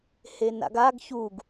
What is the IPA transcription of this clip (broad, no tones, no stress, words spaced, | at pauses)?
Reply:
hena̰ɡaɡ çuɡ